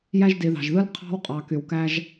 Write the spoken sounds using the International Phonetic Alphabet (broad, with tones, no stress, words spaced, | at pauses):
jæ˥ʒdi˧ðɑ̤˧ʒðɯ˥l qʰɑ̤˥wqʼɑ˧ ky˧wkæ˥ʒ